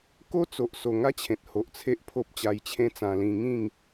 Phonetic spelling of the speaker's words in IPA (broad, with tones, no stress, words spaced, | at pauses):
ko˦t͡so˨ʔso˨˩ ŋa˦ t͡ɕʰẽ˨t̚ho˨ʔ t͡sʰe˦ʔpʰo˦p̚t͡ɕa˧jt͡ɕʰẽ˦ t͡sã˧lĩ˧ŋĩ˥˧ŋ